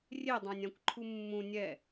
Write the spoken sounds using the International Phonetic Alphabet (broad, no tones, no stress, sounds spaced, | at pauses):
rʲ e dˤ ã nʲ ã kʷ ǃʰ u mː ũ nʲ ɛ